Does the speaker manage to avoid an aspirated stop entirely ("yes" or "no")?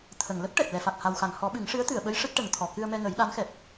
no